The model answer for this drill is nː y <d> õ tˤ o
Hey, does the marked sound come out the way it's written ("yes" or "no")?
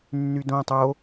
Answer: yes